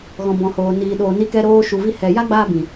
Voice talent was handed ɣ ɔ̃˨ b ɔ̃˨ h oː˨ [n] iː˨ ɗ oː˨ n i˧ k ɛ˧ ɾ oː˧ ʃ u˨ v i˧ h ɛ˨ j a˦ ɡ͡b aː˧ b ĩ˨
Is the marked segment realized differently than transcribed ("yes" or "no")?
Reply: no